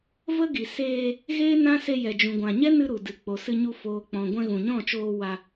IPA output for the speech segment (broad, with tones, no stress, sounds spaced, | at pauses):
v ə˦ ɡ i˨ s eː˧ | ɣ eː˦ n ã˦ s e˧ j ɛ˨ d͡ʒ ũ˨ ɡʷ ã˨ ɲ ɛ˦ n ɨ˧ ɾ u˨ d ɨ˨ k͡p o˨ s ɨ˧ ɲ u˧ f oː˨ k͡p ɔ̃˨ ɡʷ ɛ̃˧ ɣ ũ˨ ɲ ɔ̃˦˨ t͡ʃ oː˧ w a˧